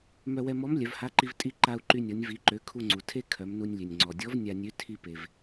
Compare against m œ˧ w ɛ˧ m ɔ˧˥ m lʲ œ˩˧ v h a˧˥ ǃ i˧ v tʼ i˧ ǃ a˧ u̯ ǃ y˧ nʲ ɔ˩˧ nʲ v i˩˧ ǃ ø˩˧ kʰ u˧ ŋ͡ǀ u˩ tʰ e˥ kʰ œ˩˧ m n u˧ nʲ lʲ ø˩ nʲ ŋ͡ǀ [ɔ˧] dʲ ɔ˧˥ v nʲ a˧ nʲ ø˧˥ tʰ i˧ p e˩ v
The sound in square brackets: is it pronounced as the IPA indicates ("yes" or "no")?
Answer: no